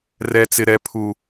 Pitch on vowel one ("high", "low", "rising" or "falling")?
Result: high